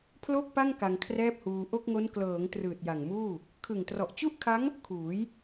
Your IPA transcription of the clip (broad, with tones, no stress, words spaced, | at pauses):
pʰlo˥˩k̚pa˥˩ŋ ka˧ŋkʰrɛː˥˩p̚huː˧ ʔo˥˩k̚ŋo˦˥n klɤː˩˦ŋ trɯː˨˩t̚ja˨˩ŋmuː˥˩ | kʰɯ˨˩ŋtrɔ˨˩ʔt͡ɕu˥˩ʔkʰa˦˥ŋ | kʰuː˩˦j